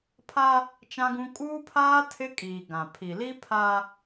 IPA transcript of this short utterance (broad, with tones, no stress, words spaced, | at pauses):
pʰa˦ | t͡ʃã˦ɡũ˦ kʼuː˦pʰaː˦ tʰɪ˦kʼiː˨ ɡã˨ pʰi˨li˦ pʰa˦